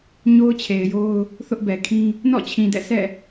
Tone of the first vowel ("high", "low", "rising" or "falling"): high